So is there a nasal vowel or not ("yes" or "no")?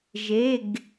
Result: no